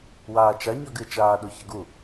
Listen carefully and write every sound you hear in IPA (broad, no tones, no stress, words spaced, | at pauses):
waːt͡ʃa ɲɔɡɨ t͡ʃaːɗoçəɡu